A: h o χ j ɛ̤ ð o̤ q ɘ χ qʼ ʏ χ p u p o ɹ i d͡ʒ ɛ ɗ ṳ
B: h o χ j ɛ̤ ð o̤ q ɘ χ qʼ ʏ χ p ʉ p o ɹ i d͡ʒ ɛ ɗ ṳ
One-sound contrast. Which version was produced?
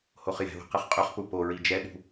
A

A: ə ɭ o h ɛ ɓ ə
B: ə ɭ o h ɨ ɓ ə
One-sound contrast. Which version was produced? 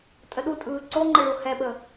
A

